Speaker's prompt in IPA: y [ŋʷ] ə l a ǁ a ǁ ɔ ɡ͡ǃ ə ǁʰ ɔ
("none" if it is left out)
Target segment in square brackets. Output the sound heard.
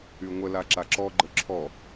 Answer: ŋʷ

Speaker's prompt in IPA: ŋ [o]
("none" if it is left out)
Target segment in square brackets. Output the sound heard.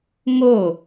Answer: o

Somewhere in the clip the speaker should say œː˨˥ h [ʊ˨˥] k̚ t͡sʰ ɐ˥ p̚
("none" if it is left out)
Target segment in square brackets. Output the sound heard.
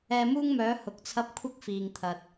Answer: ʊ˨˥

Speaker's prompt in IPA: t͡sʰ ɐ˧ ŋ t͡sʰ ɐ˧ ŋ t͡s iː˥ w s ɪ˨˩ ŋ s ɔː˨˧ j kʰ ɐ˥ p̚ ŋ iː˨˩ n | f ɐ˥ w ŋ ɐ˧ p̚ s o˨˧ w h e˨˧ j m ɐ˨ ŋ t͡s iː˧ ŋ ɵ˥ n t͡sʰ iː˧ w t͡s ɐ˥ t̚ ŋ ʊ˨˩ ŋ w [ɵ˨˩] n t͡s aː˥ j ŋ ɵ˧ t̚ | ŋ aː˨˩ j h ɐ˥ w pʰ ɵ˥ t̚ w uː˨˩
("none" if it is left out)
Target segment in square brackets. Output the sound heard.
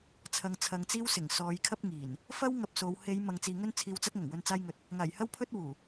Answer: ɵ˧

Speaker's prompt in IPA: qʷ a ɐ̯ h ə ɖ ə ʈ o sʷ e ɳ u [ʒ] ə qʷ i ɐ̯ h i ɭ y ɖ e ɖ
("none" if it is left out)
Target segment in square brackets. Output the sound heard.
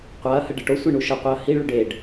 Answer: ʃ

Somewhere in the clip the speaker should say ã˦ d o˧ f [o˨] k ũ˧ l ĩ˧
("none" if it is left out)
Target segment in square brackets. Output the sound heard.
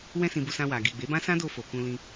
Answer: o˨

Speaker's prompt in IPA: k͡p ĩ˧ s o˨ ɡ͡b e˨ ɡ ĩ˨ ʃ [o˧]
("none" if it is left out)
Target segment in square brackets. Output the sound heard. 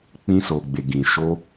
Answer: o˧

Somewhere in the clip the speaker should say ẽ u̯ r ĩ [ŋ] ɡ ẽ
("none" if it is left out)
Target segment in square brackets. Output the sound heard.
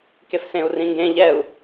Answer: ŋ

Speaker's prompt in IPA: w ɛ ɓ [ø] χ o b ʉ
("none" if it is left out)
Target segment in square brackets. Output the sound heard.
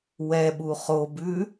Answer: u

